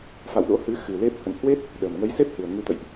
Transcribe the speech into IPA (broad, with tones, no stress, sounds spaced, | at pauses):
f a̰˧˨ w ɗ o̰˧˥ h ɨ˨˦ x ɨ˨˩ l e˦˥ p̚ h ə̰˧˨ n h w e˦˥ t̚ | ɗ ə˨˩ m ŋ ə˨˦ j s e˦˥ p̚ h ɨ˨˩ ə̯ ŋ ɨ˧ t̪ ə̰˧˨ j ʔ